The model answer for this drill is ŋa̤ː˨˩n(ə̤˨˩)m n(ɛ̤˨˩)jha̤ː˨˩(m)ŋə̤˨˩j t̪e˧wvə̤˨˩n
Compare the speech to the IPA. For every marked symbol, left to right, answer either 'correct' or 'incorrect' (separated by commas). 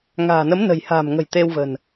incorrect, incorrect, correct